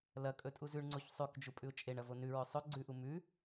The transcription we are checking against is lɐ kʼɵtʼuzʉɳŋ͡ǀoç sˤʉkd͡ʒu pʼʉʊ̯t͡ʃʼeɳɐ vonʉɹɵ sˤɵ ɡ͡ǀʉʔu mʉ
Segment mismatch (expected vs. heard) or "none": none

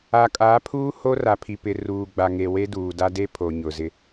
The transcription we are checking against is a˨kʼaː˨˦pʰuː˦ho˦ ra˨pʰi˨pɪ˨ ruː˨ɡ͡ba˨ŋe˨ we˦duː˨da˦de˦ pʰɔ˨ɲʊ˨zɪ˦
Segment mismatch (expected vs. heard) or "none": ɔ˨ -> o˨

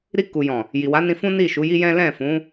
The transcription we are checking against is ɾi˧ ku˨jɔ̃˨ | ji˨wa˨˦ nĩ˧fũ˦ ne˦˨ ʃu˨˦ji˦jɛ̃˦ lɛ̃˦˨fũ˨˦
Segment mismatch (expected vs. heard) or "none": e˦˨ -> i˦˨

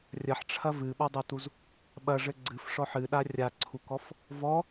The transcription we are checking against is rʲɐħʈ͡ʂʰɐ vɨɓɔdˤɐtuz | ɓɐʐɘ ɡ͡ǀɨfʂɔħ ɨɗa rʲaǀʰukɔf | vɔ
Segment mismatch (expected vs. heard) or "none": none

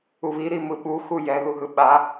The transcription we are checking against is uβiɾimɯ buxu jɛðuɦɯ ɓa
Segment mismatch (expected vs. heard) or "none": b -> ɓ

